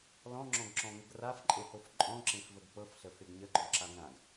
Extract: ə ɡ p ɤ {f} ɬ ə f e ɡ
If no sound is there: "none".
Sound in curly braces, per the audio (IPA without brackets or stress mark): f